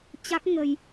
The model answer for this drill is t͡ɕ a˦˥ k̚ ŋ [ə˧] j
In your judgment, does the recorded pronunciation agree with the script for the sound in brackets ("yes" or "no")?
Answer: yes